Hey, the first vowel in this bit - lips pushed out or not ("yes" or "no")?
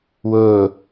yes